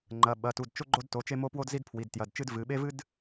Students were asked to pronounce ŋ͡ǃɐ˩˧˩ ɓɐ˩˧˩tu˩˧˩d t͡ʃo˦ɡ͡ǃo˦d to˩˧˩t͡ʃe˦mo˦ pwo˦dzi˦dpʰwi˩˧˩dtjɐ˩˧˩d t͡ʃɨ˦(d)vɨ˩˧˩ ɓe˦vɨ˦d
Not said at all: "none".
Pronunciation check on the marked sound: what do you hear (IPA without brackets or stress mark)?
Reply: d